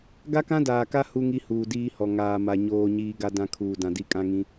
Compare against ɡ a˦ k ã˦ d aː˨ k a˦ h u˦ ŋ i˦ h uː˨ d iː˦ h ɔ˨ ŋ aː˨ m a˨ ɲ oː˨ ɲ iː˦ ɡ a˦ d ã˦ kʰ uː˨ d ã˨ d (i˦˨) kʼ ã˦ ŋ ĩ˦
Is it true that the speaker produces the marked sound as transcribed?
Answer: yes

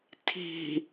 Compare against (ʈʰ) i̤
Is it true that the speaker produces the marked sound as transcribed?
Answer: no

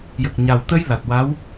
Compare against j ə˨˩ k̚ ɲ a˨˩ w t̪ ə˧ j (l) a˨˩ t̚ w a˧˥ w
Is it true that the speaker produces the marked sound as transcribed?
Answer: yes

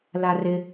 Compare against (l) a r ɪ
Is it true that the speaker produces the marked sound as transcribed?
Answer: yes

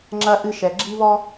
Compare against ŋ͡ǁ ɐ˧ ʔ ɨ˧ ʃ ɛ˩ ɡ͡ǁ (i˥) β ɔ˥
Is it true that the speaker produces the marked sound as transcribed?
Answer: yes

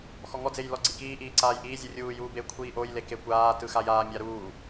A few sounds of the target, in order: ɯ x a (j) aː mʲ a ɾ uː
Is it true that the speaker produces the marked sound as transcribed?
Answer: yes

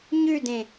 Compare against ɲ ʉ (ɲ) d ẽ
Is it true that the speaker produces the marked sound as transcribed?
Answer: no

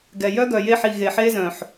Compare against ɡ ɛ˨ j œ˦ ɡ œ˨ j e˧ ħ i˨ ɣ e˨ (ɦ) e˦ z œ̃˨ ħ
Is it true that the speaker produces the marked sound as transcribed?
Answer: no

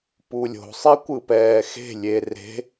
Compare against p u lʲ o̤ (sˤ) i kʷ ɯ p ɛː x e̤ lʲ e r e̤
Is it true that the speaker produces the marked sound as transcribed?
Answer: yes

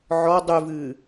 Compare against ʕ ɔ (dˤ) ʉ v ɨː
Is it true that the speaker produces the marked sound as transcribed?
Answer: yes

